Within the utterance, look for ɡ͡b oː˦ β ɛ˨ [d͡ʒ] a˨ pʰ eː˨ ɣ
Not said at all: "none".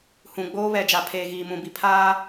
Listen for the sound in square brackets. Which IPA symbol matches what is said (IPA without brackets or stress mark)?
d͡ʒ